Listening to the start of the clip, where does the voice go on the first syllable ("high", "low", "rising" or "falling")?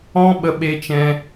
high